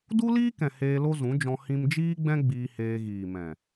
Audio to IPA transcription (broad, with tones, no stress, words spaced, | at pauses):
du˦liː˦kɛ̃˨ heː˧lo˦zũ˨˦d͡ʒɔ̃˧ hĩ˧md͡ʒiː˦ɡ͡bɛ̃˦ ɡ͡biː˧heː˧ɣiː˨mɛ̃˨